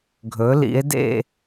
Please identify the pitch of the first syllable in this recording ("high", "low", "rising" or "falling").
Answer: rising